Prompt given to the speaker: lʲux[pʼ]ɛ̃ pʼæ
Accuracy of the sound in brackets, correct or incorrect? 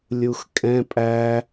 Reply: incorrect